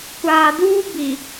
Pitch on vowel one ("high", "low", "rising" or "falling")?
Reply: low